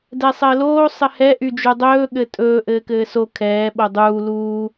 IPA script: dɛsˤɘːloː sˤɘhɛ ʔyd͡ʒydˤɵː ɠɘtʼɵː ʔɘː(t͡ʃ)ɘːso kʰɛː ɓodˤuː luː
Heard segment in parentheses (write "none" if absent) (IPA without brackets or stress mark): k